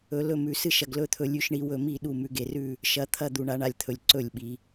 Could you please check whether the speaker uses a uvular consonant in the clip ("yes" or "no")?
no